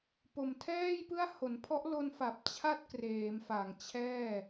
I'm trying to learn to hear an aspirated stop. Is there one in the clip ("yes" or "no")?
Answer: yes